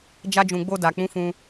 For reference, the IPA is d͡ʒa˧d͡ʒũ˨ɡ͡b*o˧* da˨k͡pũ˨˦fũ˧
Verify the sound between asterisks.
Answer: correct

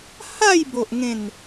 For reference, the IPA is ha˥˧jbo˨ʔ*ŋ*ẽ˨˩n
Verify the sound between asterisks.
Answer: correct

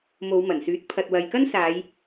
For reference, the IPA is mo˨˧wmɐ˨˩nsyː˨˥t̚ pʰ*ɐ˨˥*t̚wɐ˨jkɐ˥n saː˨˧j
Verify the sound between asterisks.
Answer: incorrect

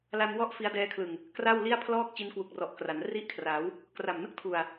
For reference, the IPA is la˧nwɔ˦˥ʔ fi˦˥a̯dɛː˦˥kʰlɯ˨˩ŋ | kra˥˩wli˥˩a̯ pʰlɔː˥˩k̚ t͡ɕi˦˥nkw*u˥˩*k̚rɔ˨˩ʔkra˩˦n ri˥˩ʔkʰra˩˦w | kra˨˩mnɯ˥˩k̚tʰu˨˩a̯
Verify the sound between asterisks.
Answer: incorrect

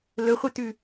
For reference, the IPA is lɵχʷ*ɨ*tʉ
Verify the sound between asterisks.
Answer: correct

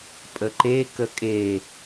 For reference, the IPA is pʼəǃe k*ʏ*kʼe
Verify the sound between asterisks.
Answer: incorrect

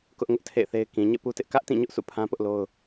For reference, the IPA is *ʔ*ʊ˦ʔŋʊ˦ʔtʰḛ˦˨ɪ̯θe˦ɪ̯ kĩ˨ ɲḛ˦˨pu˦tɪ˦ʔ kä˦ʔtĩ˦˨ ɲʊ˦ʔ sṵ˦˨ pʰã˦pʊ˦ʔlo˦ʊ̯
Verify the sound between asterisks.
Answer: incorrect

